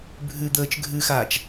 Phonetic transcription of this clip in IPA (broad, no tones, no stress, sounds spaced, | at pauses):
bʱ ʉ d̪ əː t͡ʃ ɡʱ ʉ x aː t͡ʃ